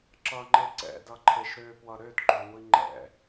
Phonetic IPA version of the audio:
ǁ ʌ ŋ͡ǃ e ǀ ɛ̰ d ʌ ǃʰ e ʃ ɾ ø p w ʌ ɾ ø d ɡ͡ǃ ø ŋʷ i ŋ͡ǃ ɛ̰

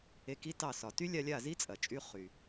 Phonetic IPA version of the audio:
e˧ k i˦ t ɑ˦˨ s ɒ˨ t y˦ lʲ a˧ lʲ a˦˨ z i˦ t͡sʼ ɐ˨ t͡ʃʼ y˦ χ y˨

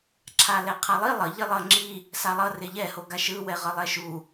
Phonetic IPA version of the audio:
ǁʰ a l ɛ qʰ a lˠ i lˠ ʌ ʎ i lˠ ʌ ŋ͡ǁ i | s a lˠ ʌ r e ʎ ɛ h o ɡ a ʃ ɯ w ɛ ʁ ʌ lˠ ɛ ʃ u

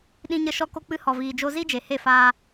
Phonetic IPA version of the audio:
ɗ ĩ˧ ɲ ə˧ ʃ ɔ˧ k o˧ k͡p ɨ˧ h ɔ˨ v iː˨ d͡ʒ o˧ z i˦ d͡ʒ e˨ h e˦˨ f aː˧

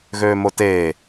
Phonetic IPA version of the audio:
ɣ øː m o t eː

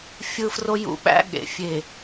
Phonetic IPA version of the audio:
fʲ ɯ˦ f r o˦ j ṵ˨ ɓ æ̰˦ ɠ ḛ˨ fʲ e˨

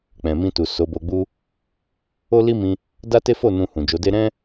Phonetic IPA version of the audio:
k͡p ɛ̃˨ m ĩ˧ t u˨ s o˨˦ b o˧ ɡ͡b u˦ | o˦ l i˦ m ĩ˧ | d a˦ t e˦ f o˦˨ n ũ˧ h ũ˨ d͡ʒ o˨˦ d e˦ ɾ ɛ̃˦

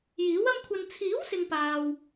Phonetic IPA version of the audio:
j iː˨˥ w ɐ˥ m kʷʰ ɐ˧ n t͡sʰ iː˨˥ w s ɪ˨ ŋ p aː˨ w

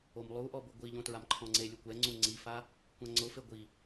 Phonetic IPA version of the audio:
o m lˠ u ʔ ɔ b ʊ ɡʷ i ʎ õ t ɹ a m ǃʰ ɔ̃ ŋ͡ǀ e lʲ u kʷ ɛ ŋ͡ǀ ũ ŋ͡ǀ i f a | kʷ ã ŋ͡ǀ ʊ f e ɡʷ i

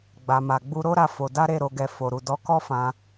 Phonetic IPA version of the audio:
ɡ͡b a˨ m a˨ ɡ͡b u˧ ɾ o˦ ɾ a˧ f o˧ d a˦ ɾ e˦˨ ɾ o˧ ɡ ɛ˧ f o˨ ɾ u˨ d ɔ˧ k ɔ˦ f ã˧

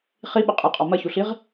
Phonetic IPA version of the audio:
χ i ɓ ə qʼ ɨ qʼ ɔ m ɐ ç u ɬ i ʁ

